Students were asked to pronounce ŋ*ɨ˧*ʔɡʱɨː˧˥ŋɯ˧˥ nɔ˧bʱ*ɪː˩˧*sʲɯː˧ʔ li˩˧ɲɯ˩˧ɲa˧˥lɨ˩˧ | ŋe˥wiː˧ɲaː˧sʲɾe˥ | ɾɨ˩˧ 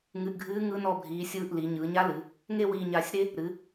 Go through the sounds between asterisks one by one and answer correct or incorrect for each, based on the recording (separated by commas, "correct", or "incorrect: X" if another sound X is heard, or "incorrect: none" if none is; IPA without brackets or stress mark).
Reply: correct, incorrect: iː˩˧